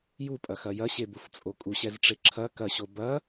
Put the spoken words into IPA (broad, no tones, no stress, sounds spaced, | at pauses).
j u pʼ ɐ x ɐ j ɐ ɕ e b u f t͡sʼ o kʼ u ɕ ɛ z ʈ͡ʂ e ǁʰ ɐ k ɐ ɕ o b ɐ